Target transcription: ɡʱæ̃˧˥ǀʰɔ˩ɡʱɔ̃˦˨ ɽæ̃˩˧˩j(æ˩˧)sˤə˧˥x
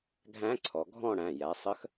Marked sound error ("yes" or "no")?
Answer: no